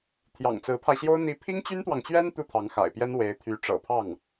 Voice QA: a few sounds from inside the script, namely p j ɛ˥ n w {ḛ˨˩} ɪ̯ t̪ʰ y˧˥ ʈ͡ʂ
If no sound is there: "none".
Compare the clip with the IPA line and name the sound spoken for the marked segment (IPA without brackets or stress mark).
e˧˥